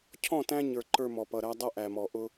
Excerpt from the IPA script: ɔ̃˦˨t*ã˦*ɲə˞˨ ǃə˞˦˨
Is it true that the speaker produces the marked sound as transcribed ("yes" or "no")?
no